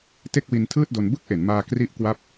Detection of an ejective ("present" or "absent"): absent